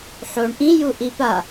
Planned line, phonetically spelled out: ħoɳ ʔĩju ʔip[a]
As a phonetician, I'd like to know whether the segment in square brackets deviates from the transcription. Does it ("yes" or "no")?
no